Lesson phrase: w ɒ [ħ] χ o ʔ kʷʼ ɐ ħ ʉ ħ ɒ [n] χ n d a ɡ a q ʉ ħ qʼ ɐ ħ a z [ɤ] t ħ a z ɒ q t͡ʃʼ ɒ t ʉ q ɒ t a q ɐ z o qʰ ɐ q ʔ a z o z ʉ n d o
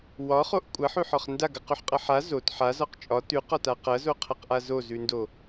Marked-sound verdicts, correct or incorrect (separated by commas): incorrect, incorrect, incorrect